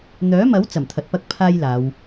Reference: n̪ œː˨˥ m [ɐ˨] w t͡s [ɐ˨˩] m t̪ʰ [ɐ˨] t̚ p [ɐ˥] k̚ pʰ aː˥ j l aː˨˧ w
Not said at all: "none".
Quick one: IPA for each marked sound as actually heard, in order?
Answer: ɐ˨˥, ɐ˨˩, ɐ˨, ɐ˥

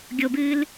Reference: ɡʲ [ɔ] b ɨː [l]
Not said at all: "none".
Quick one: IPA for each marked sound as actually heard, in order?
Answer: o, l

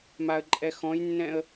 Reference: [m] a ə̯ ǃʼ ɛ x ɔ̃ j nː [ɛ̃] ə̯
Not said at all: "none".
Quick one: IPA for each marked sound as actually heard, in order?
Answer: m, ɛ̃

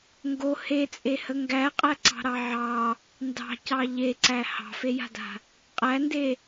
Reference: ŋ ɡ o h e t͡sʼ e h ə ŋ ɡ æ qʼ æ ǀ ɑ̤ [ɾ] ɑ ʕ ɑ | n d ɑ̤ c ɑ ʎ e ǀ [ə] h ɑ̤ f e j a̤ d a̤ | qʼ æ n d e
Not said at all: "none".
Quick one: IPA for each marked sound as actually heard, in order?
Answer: ɾ, æ

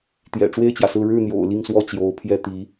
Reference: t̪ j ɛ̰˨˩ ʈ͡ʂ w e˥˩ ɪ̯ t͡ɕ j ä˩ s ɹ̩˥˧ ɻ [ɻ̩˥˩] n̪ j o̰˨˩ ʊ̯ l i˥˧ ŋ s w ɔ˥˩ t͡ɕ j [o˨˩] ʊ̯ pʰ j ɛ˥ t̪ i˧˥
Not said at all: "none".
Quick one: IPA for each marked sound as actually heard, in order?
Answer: ɻ̩˥˩, o˧˥

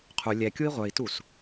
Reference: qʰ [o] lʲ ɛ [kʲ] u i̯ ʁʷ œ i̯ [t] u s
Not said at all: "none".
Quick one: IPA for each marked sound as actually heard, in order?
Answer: u, kʲ, t

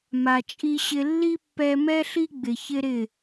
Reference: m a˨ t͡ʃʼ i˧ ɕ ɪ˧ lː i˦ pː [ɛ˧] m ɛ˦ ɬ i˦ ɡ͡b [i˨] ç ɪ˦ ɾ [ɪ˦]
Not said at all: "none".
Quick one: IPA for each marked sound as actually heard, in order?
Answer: ɛ˧, ɪ˨, ɪ˦˨

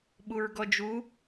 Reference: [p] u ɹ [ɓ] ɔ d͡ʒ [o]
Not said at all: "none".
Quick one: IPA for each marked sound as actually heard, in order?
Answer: ɓ, ɡ, u

